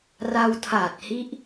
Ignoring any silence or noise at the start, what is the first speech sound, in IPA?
r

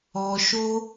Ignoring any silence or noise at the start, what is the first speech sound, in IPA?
ɔ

